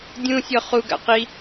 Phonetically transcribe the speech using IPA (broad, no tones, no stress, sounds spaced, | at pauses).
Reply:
dʲ ũ sʲ ɔ χ u ɡ a̰ q i